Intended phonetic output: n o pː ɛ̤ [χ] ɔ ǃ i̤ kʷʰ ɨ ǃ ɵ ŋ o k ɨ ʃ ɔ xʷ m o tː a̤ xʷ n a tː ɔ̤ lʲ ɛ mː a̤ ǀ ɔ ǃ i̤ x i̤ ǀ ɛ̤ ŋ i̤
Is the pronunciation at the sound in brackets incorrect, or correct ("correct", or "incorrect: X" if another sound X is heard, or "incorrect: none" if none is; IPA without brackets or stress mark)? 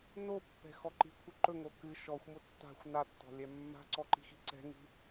incorrect: x